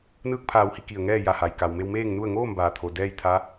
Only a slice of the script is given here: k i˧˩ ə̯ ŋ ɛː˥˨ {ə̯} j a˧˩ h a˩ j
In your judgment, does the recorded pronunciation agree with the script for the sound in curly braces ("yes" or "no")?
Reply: no